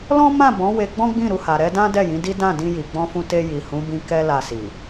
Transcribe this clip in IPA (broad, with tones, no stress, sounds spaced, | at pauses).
l ɔ̃˦ m ã˦˨ b ɔ̃˨˦ w e˧ ɡ͡b ɔ̃˦ ɡ͡b ĩ˦˨ ɾ u˧ h a˨ ɾ ɛ˧ d ã˦ d ɛ˦˨ j ĩ˨˦ d i˦ d ã˦˨ d ĩ˧ j i˨ ɡ͡b ɔ̃˧ f ũ˧ t e˧ j i˨ h ũ˨˦ b ĩ˧ k ɛ˦ l a˧ s i˨